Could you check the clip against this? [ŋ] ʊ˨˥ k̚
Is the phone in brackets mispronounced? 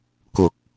yes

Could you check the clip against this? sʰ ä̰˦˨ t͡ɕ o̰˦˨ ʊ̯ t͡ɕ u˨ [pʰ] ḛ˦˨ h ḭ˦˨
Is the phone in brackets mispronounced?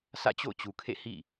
yes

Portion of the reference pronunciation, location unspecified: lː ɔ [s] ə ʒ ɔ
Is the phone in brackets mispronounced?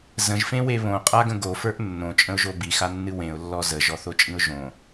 yes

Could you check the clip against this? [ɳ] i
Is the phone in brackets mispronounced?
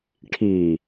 yes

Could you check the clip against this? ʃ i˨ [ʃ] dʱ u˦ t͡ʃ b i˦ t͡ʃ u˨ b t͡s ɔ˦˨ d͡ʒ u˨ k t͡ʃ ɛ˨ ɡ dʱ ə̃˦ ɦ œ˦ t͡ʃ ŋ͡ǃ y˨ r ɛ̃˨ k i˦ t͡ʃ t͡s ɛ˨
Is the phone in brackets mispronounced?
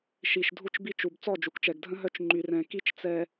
no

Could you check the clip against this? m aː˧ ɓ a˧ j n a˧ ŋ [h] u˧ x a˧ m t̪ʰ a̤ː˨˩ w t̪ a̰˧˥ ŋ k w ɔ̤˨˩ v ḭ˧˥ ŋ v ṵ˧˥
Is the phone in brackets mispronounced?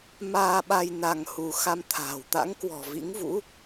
no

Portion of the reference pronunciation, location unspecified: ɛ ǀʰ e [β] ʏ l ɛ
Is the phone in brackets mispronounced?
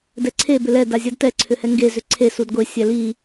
yes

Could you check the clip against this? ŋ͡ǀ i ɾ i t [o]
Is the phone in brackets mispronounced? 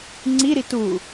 yes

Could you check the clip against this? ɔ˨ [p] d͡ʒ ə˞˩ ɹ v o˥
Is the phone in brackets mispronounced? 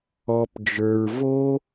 no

